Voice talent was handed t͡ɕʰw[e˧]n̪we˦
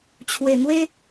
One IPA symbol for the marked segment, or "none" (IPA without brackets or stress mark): e˨˩